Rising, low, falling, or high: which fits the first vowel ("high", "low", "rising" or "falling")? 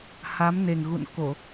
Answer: rising